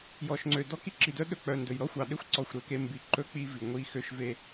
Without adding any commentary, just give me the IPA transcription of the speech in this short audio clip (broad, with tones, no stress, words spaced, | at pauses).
jɔ˨ʃŋ͡ǀø˨ dɔ˦ki˦ǁi˨ dœ˦ɗɵ˦k͡pœ˨ndɵ˨j ɾɔ˦xʷɑ˨ɗe˦xʷ ǀɔ˦˨xʷɾø˦ke˦ mbi˨ǃɵ˦ k͡pi˦vi˨ŋʷi˦ xø˦ʃ ve˦